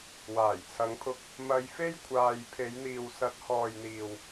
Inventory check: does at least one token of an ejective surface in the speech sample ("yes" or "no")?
no